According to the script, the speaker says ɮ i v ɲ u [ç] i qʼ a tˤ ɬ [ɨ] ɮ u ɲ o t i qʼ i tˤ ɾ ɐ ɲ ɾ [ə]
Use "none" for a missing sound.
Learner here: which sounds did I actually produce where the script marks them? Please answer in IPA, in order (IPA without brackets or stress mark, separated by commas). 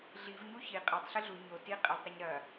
ç, ɨ, ɐ